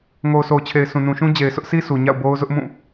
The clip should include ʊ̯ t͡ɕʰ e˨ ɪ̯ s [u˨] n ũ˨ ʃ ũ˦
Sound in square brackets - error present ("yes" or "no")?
yes